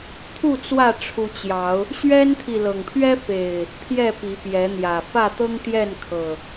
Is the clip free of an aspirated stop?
no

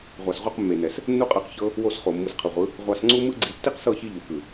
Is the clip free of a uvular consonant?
no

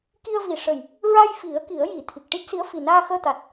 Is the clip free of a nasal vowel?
yes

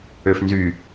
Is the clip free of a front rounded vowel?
no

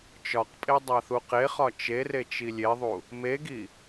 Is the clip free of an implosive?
yes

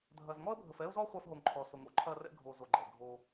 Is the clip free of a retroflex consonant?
yes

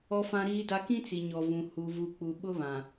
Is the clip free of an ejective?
yes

